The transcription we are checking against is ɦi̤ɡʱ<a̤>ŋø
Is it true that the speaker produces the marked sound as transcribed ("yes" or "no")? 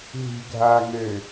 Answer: no